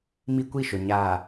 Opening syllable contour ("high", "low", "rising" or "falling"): high